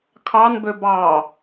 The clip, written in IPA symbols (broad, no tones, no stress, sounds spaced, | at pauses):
kʰ ɑ n b ø b ɑ